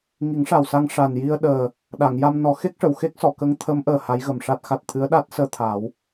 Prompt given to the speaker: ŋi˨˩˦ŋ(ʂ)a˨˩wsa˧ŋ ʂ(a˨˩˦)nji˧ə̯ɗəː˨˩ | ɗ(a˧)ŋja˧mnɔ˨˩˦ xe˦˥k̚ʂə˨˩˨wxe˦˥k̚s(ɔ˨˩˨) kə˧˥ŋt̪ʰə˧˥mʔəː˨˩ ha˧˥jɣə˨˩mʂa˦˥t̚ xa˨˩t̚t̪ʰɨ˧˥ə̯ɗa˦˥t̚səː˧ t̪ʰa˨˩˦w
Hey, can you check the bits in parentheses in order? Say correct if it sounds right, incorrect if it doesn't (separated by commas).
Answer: correct, incorrect, incorrect, correct